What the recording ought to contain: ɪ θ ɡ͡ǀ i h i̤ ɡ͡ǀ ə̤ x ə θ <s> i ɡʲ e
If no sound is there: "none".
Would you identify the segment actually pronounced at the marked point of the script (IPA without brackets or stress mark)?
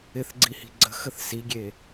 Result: s